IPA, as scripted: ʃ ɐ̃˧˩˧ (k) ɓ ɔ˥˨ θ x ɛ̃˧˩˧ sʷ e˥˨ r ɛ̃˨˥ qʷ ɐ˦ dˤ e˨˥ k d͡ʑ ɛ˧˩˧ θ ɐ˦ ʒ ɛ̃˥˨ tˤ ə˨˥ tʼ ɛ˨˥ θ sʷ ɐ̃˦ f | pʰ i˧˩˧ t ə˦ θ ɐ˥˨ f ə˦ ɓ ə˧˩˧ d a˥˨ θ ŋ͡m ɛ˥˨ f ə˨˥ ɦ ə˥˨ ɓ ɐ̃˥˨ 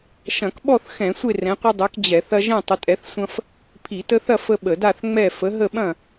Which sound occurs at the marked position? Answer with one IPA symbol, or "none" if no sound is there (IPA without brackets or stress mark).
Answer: k